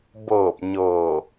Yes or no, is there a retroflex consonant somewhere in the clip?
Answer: no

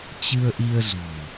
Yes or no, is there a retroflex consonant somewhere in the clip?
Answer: no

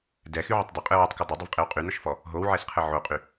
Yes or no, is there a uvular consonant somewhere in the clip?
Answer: yes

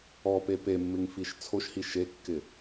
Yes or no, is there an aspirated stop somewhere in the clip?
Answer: yes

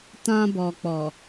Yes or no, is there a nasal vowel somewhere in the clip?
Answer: yes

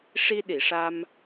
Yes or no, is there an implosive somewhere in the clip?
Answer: yes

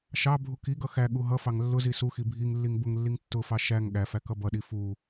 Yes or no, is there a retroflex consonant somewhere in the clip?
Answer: no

